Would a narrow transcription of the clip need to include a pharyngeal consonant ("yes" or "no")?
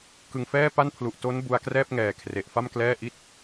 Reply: no